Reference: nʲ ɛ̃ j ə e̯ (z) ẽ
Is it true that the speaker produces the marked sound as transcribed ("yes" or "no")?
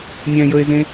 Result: yes